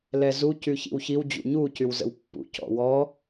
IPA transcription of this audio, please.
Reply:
l ɛ z u c y ç ḭ w ç i w d͡ʑ ṵ ɲ u c y w z ə̰ w pː ṵ c ɔ̰ w ɔ

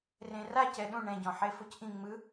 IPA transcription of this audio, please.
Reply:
r ẽ r a c ɛ ɗ ũ ɳ ɛ̃ ɟ ɔ̃ ħ e f o c ʔ ĩ ŋ͡m ɯ

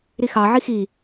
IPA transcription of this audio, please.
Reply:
ɾ i x ɑ ʕ i x i

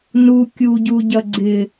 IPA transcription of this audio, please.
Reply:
n u kʲ u ɟ u ɟ ɐ ɡ͡ǀ ɪ

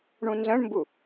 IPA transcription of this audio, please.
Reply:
ɳ ũ n z ə̃ ɳ m b u

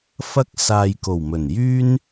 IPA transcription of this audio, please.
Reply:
f ɐ˥ k̚ s aː˨ j k o˨˩ w m ɵ˨˩ n j yː˥ n

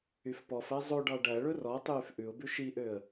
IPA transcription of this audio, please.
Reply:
y f p ɔ f æ zˤ o ɖ ɑ ɖ æ ɭ ɵ r ɔ tˤ yː f ʔ ʉ ʊ̯ b ʉ ʃ i ʔ ø ə̯

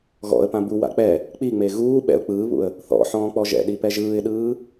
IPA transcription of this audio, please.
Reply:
ɣ ɔ̰ ə̯ p ã b u w a̰ k͡p ɛ | k͡p i ŋ͡m e ɣ uː ɓ ɛ̰ ʊ̯ k͡p ɯː β ṵ ə̯ | θ ɔ̰ ħ ɔ̃ː k͡p ɔ ʒ ɛ̰ ɗ i p ɛ ʒ ɯː ɪ̯ ɗ ɯː

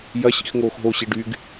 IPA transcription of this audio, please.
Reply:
j ɐ ɕ ḭ x ŋ oː x ɦ o ɕ i ɖ y ɡ

